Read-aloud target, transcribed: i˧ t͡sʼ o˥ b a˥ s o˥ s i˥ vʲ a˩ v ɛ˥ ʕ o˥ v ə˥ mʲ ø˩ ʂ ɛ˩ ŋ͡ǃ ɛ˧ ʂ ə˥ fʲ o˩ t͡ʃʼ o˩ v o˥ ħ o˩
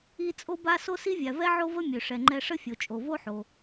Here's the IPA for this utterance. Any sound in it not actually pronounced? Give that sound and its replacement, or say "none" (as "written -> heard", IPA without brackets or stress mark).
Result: none